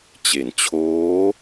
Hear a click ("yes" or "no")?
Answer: no